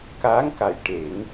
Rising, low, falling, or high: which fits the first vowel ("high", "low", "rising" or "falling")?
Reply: rising